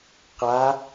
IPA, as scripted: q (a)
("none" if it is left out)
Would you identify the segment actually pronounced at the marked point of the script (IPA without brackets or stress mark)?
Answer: a